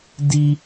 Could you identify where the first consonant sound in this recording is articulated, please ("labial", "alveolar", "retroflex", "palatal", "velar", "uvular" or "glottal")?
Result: alveolar